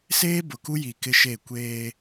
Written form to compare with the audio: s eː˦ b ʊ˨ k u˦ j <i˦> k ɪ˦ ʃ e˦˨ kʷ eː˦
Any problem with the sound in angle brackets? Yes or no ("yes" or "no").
yes